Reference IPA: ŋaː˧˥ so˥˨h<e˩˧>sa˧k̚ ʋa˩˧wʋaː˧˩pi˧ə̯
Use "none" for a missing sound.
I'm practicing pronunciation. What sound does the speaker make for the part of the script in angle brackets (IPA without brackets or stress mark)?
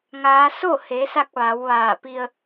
e˩˧